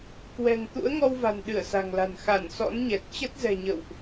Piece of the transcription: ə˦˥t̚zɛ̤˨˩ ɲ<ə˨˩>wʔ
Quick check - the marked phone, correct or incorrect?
incorrect